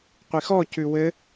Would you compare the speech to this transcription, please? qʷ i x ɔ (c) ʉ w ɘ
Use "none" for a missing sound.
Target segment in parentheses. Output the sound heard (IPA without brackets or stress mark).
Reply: c